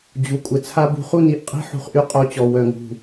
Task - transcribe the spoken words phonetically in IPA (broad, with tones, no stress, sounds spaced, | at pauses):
d͡ʑ u˩˧˩ kʷʼ ə˩˧˩ t͡sʰ a˧ b ṳ˩˧ χ u˥˩ n i˧˩ ʔ qʼ i̤˥˩ ħ ṳ˧ χ ʔ y˧˥ qʼ o˧˥ t͡ɕ ɔ˩˧˩ w œ˥˩ ŋ ṳ˥˩